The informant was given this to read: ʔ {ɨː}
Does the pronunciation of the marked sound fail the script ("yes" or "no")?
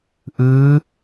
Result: no